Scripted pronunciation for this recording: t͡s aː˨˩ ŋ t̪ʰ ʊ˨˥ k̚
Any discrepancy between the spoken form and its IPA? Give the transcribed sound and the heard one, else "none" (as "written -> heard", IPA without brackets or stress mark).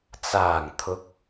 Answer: none